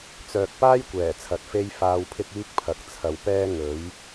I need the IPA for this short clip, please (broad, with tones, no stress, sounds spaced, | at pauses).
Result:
t͡s œː˨ k̚ p aː˥ j kʷ ɛː˨˩ t͡sʰ ɐ˨ t̚ f e˥ j f aː˧ w pʰ ɪ˥ k̚ iː˥ k̚ pʰ ɐ˨ k̚ t͡sʰ ɐ˨ w p ɛː˥ ŋ ɵ˨˥ ɥ